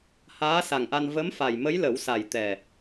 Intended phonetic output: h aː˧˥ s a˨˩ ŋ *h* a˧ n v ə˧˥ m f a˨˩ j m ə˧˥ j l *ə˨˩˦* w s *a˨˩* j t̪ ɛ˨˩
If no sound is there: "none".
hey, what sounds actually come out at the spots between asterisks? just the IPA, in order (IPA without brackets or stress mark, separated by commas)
ʔ, ə˨˩˦, a˨˩